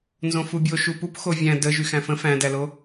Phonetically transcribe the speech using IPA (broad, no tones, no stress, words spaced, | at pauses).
nzõfubʲo ʃupup xovʲæ̃ də ʒyxæ̃fə̃ fæ̃dælo